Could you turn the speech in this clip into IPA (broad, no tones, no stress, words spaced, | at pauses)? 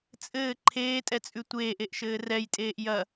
t͡sʼɘː ǃʰeːtʼɛt͡sʼʉ tʷeːʔeʔʃɘː rɛjtʼeːʔ jɐ